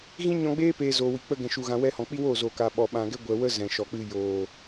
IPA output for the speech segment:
ɣ ĩ˦ ɲ ɔ̃˧ ɡ͡b eː˦ p eː˨ z oː˨ w i˨ k͡p ə˧ ɡ ɛ̃˨ ʃ u˨ ɣ ã˨ w ɛ˧ h ɔ̃˨ k͡p i˦ w oː˦˨ z oː˨ k aː˨ ɓ ɔ˨ ɓ ã˨ ɡ ɛ˦ ɡʷ ɛ˨ w ə˦ z ɛ̃˨ ʃ ɔ˨ k͡p ɨ˧ j oː˨

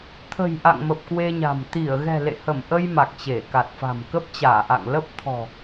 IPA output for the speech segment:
t̪ʰ ə̤˨˩ j ʔ a̰˧˨ ŋ m ə˨˩ p̚ k w e˧ ɲ a̤˨˩ m t̪ i˧˩ ə̯ ɣ ɛ̤˨˩ l ḛ˧˨ h ə˧˩ m ʔ ə˧ j m a˨˩ k̚ t͡ɕ e˧˩ k a˨˩ t̚ f a̤˨˩ m k ə˦˥ p̚ t͡ɕ aː˧˩ ʔ a̰˧˨ ŋ l ə˦˥ p̚ t̪ʰ ɔ̤˨˩

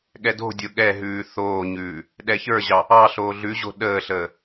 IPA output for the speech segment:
ɠ ɛ d o̤ dʲ o ɠ ɛ ɦ ʉː θ oː ɲ ʉː | ɗ ɛ ç ə˞ ʑ ɑ | ɑ ɬ oː ɮ ʉ ʑ o̤ ɗ əː ɬ əː

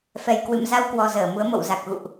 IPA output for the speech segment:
f ɛ˨˩ j k w ɨ̰˧˨ m z a˧ w k w ɔ˨˩ z əː˧˩ m u˨˦ ə̯ m o̰˧˨ w z a˨˩ k̚ ɣ ṵ˧˨ ʔ

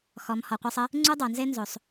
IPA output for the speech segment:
x ɔ˨ m h ɔ˨ qʷ e˧ sˤ ə˦ | ŋ͡ǀ u˦ dˤ o˨ n z e˦ n z o˨ sˤ

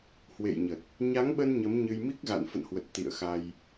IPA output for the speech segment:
h w ḛ˧˨ j ɲ ə˨˩ t̚ | ɲ a˨˦ ŋ ɓ ə˧ n ɲ ə˨˦ m ɲ ɨ˧ j m i˦˥ k̚ ɣ a̰˧˨ n f ə̰˧˨ n h w ə˨˩ t̚ t̪ ḭ˧˨ ə̯ x a˧ j

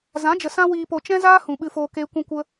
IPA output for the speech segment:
z ã˨˦ d͡ʒ ə˨ s ã˦ w iː˧ p o˧ t͡ʃ ɛ̃˦ z aː˦ h ũ˨ ɓ ɨ˧ f oː˧ k eː˦ kʷ ũ˦ kʷ ə˦

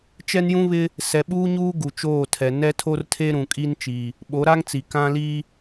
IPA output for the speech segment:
t͡ʃ ɛ˦ n j ũ˦ β ɪ˦ | s ɛ˨ ɓ uː˦ ɲ uː˦ ɡ u˨ t͡ʃ oː˦˨ tʰ ɛ˨ n ɛ˦ tʰ o˦ r tʰ e˦ ɾ ũ˨ kʼ i˦ n t͡ʃ i˨ | ɓ o˨˦ ɾ a˦ ŋ t͡s i˨ k ã˦ l i˦

